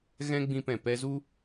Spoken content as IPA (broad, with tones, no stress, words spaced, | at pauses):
ɣɛ̃˦ɡ͡bĩ˧pɛ̃˨ pɛ˧zu˦